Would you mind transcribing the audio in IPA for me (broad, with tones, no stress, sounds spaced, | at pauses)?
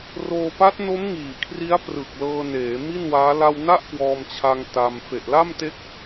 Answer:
r oː˧ p a˦˥ t̚ n o˦˥ m ŋ iː˨˩ kʰ r i˦˥ a̯ p r ɯ˨˩ k̚ l ɤː˧ n eː˩˦ m i˥˩ n w aː˦˥ l a˧ w n a˥˩ ʔ k w ɔː˧ m t͡ɕʰ a˧ ŋ t a˧ m f e˨˩ ʔ l a˥˩ m t e˦˥ k̚